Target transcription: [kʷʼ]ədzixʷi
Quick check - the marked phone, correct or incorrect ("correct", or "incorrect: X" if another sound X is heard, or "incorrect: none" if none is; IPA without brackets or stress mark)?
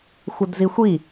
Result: incorrect: xʷ